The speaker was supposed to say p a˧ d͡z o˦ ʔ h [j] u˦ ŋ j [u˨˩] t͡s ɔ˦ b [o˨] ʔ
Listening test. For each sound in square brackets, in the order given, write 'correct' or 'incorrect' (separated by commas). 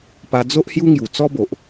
correct, correct, correct